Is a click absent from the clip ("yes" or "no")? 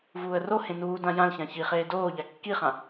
yes